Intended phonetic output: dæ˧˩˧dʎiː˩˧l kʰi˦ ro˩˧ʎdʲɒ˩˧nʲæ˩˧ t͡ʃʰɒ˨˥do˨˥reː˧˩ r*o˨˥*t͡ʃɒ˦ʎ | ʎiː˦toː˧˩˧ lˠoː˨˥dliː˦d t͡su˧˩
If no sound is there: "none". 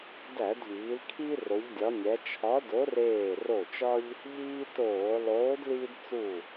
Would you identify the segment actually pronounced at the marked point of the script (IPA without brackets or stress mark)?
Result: o˧˩